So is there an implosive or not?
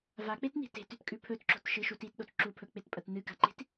yes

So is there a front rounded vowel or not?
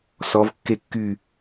yes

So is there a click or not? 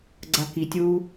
yes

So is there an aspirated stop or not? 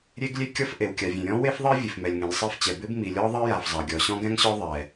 no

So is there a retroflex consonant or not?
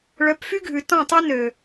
yes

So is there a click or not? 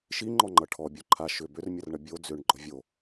yes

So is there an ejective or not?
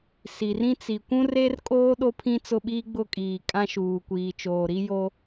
yes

